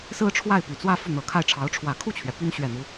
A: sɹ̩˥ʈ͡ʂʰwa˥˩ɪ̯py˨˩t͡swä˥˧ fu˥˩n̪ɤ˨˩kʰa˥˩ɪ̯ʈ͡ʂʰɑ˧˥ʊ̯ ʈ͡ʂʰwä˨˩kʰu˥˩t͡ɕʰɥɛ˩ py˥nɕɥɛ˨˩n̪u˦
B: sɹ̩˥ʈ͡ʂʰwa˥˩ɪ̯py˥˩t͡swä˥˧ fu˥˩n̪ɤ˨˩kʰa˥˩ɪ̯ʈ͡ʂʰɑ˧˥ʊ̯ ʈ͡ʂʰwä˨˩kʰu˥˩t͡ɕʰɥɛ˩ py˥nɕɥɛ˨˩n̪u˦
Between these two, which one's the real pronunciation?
A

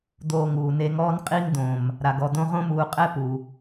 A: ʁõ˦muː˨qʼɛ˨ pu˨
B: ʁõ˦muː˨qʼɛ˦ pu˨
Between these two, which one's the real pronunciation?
B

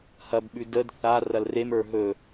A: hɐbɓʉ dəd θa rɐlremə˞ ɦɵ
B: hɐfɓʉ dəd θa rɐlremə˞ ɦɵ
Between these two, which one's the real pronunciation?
A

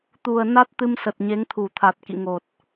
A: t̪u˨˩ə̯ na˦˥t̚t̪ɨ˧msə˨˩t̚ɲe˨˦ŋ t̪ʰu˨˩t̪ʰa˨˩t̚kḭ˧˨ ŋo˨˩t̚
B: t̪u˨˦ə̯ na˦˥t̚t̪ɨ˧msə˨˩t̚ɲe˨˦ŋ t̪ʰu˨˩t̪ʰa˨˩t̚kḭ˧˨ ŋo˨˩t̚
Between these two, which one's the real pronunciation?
A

